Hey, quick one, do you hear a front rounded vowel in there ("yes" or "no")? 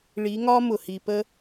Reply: no